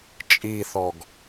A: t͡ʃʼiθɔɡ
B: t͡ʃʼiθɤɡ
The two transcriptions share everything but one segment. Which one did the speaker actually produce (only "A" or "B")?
A